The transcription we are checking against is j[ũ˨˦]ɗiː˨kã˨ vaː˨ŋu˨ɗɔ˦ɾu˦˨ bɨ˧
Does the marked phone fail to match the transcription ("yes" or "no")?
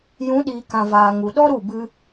no